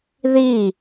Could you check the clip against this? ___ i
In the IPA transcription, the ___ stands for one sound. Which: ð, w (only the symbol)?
ð